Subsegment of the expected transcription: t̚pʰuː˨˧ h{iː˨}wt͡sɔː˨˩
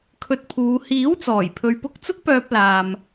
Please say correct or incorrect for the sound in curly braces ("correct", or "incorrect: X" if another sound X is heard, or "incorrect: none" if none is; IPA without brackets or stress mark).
incorrect: iː˨˥